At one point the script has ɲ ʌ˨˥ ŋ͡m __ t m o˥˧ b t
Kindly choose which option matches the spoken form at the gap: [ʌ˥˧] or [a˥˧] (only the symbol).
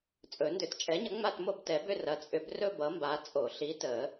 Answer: a˥˧